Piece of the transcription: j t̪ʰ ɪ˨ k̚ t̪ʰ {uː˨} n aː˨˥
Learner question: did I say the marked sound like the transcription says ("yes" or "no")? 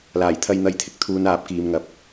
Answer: no